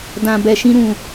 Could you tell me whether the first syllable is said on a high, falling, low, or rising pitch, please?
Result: low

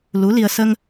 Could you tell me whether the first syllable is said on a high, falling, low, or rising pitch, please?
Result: rising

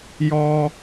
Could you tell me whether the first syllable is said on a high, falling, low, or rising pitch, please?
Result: high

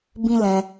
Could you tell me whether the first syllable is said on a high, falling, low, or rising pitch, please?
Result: high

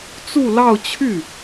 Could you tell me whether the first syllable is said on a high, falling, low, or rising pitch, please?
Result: falling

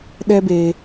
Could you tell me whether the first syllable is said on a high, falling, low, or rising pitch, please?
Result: high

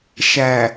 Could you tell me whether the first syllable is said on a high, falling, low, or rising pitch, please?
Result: low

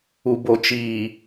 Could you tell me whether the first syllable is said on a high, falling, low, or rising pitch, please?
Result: low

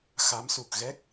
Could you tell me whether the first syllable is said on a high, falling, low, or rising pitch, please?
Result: rising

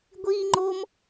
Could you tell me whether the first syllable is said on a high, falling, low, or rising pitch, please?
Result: high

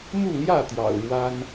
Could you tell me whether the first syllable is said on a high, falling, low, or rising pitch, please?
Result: falling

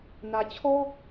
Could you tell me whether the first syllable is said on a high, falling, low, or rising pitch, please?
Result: low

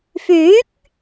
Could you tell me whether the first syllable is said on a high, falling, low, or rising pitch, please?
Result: rising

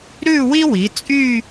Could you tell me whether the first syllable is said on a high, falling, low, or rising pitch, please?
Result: falling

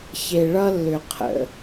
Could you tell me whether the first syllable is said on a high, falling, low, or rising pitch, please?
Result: low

